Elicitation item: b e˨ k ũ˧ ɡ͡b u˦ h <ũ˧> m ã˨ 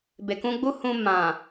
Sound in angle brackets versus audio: correct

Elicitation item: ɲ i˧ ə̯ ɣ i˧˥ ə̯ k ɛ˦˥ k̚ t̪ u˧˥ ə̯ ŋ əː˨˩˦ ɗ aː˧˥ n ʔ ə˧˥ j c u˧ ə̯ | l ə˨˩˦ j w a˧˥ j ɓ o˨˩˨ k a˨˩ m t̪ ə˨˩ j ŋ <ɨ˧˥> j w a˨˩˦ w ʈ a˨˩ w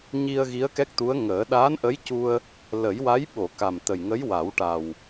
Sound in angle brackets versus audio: incorrect: ə˧˥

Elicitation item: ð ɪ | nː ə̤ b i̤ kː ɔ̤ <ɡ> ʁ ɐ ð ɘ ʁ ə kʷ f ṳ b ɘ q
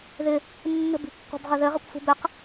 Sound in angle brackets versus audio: incorrect: b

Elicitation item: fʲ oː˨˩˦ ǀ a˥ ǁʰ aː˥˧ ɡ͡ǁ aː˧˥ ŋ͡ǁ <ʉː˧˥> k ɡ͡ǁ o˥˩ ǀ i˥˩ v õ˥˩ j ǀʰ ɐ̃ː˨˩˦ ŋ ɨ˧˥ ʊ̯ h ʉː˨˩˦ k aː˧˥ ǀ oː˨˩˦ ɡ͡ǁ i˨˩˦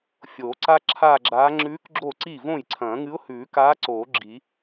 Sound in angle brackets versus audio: correct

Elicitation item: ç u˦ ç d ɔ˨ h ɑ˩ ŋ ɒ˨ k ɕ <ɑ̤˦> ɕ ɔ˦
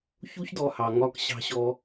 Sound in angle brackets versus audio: correct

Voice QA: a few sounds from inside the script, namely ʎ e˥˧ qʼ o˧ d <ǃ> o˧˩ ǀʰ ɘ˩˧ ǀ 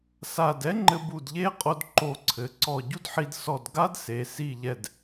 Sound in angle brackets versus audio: correct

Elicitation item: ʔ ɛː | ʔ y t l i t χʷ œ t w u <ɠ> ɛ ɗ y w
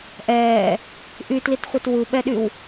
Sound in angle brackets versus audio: incorrect: ɓ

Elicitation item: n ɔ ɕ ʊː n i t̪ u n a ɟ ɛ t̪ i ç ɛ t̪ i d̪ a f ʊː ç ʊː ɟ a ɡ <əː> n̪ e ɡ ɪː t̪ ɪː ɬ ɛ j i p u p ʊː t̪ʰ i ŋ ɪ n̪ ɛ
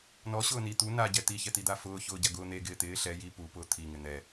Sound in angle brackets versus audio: incorrect: ʊː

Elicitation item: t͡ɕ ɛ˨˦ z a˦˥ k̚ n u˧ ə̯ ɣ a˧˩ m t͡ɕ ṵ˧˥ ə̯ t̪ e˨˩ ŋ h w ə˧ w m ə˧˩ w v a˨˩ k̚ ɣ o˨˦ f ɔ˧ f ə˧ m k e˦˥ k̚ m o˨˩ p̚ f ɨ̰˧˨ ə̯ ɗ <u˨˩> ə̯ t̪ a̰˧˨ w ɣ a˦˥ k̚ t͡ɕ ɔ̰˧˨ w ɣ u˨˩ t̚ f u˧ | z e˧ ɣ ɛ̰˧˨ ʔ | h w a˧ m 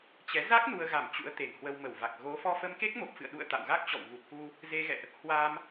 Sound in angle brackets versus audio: incorrect: ṵ˧˨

